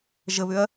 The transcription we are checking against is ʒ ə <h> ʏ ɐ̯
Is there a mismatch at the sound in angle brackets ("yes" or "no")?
yes